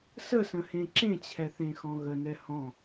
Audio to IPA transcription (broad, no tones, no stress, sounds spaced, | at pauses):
s ə s ə̃ h ẽ ǁ ẽ t͡ɕʰ ɛ θ ẽ x ɔ̃ ɣ ə n ɛ h ɔ̃